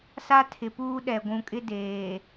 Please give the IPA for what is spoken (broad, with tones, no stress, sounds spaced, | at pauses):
s a˦ tʰ ɪ˨ p uː˦ ɗ ɛ˨ ɡʷ ũ˨ kʼ ɪ˦ d eː˨